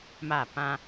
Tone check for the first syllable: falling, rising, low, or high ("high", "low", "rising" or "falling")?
falling